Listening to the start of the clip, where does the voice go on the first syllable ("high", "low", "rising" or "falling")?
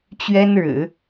high